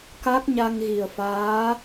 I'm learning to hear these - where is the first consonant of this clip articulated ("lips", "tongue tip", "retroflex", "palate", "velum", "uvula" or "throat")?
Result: velum